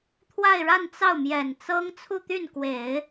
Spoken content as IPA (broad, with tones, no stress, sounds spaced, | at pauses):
t̪ʰ w a˥˧ ɪ̯ ɻ a˥˧ n t͡s ɑ˥˩ ʊ̯ m j ɛ˨˩ n t͡s ɤ˥ ŋ t͡sʰ u˥˧ t̪ y˥˩ n k w e˨˩˦ ɪ̯